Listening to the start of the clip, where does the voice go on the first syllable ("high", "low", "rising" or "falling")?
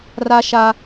high